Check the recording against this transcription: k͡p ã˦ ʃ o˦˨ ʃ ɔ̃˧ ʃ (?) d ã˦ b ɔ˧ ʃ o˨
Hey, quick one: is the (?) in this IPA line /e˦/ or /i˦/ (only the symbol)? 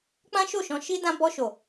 i˦